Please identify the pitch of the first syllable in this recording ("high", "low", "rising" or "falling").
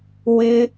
high